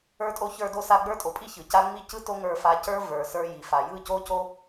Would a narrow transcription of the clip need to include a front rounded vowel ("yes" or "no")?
no